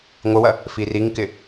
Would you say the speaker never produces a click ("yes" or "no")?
yes